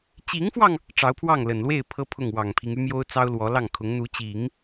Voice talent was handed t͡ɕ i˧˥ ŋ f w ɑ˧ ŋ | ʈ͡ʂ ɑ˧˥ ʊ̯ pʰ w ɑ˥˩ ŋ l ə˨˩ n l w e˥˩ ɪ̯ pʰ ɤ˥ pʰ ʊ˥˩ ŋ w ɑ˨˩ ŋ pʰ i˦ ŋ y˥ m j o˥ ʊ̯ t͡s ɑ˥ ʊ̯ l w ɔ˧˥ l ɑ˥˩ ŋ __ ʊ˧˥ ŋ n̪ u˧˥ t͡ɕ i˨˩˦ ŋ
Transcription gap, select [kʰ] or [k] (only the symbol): kʰ